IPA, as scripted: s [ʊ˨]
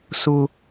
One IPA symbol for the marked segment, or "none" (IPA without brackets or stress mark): ʊ˦